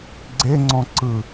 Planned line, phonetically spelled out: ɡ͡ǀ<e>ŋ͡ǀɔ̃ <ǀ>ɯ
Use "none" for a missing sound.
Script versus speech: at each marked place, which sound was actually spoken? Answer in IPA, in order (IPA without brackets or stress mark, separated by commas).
e, ǀ